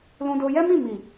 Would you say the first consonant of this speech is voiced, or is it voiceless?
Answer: voiced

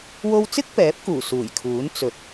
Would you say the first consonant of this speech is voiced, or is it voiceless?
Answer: voiced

